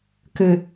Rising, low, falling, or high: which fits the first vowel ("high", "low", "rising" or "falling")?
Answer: low